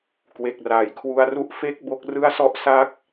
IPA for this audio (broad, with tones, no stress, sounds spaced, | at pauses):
k w e˨˩ k̚ r aː˩˦ j kʰ w u˦˥ a̯ r u˥˩ ʔ f e˥˩ k̚ b o˦˥ k̚ r ɯ˥˩ a̯ s ɔ˥˩ ʔ s a˥˩ k̚